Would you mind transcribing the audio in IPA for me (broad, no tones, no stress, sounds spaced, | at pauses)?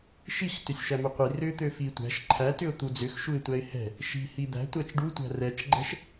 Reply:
ʃ i x t ʏ sʲ ʃ æ m ʏ qʷ i r ʏ t̪ ø f i tʷ æ̤ ʃ ǃʰ æ t ʏ ʊ̯ t̪ u d͡z ʏ x ʃ u ɪ̯ tʷ æ ɪ̯ h ɛ̤ | ʃ i̤ h i d̪ æ̤ tʷ æ t͡ʃ ɖ u tʷ æ̤ r ɛ t͡ʃ ɡ͡ǃ ɛ̤ ʃ